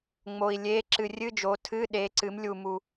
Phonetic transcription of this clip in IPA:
ŋ͡m o˨ i̯ lʲ e˧˥˧ ǁ ɨ˨ rʲ ɨ˧˥˧ d͡ʒ o˩˥ tʰ ɨ˧˥˧ ɗ e˩˥ ǀ ɨ˩˥ m lʲ u˨ m u˨

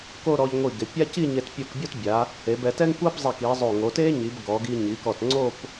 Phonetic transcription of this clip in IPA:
k o˥˧ ɾ ɔ˧ ʎ ŋʷ i˧˩ ɡ ɪ˩˧ pʲ a˥ c i˥˧ ɲ e˧ t pʲ u˧˩ k bʲ ɔ˥˧ t bʲ a˩˧ | e˩˧ b ɛ˩˧ t ɛ˥ ŋ kʷ a˥ b zˤ ɛ˧˩ k i˩˧ zˤ o˧˩ ŋ o˩˧ t e˥ ɲ i˩˧ b ɡ ɔ˩˧ ɡ i˧ ɲ i˩˧ k ɔ˧˩ t ŋ͡ǀ o˥˧ p

